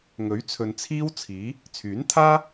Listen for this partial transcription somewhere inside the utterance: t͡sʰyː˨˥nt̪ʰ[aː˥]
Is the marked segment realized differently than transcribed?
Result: no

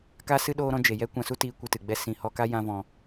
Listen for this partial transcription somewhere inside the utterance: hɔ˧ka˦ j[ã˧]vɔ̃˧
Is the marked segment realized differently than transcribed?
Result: yes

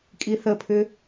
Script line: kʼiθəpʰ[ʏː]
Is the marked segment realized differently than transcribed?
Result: no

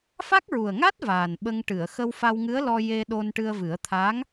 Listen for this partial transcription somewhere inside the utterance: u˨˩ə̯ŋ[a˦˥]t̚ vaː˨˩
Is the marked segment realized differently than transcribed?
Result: no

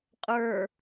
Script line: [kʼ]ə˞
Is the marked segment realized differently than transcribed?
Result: yes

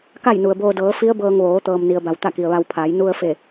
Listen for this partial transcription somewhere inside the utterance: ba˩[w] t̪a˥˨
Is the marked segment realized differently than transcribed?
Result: no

